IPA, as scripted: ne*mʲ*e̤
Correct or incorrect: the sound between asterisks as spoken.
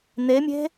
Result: correct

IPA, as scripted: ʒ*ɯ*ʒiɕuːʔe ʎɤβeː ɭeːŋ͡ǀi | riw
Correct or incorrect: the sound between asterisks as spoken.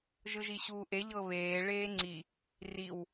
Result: correct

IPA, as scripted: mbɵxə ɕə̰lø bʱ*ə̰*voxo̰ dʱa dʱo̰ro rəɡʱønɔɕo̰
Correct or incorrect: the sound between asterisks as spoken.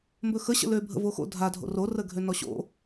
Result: correct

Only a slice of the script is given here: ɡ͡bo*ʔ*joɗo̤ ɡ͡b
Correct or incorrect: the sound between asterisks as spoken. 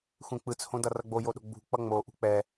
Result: incorrect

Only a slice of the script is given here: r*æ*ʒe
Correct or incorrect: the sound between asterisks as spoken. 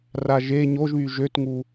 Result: incorrect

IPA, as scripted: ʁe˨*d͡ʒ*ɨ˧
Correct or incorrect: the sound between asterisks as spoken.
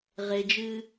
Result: correct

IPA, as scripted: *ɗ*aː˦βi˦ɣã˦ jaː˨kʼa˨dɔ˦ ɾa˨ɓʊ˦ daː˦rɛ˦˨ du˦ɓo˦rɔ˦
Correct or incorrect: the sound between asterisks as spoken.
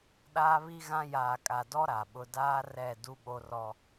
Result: correct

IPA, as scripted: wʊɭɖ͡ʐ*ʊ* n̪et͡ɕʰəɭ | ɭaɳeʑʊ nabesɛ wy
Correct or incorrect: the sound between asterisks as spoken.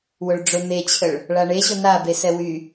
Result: correct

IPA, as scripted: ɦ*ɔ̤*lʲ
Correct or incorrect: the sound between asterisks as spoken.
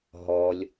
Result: incorrect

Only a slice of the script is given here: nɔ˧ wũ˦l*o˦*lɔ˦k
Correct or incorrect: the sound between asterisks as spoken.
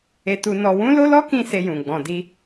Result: correct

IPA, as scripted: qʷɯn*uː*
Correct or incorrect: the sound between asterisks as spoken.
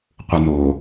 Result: incorrect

